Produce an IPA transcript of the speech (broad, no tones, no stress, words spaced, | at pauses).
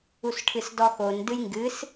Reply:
usʈʰɨsdɔxon dɨjŋɡɨs